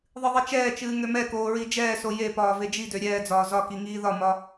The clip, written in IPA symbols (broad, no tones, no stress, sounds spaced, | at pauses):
ðˤ ɨ ðˤ i t͡ʃ ɛː t͡ʃ ɨː ŋ ø m ɛ k oː ɹ i d͡ʒ ɛː s o j e p ɒː v e d͡ʒ i d ø ɾʲ ɛː d͡z ɒː z ɒ k i ŋ iː ð ɒ m ɒ